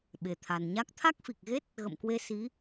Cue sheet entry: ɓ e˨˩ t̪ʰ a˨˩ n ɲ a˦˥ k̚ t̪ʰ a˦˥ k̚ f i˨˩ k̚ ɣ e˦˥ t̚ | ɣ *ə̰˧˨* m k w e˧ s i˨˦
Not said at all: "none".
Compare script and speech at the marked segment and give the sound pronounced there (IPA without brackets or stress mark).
ə̰˧˨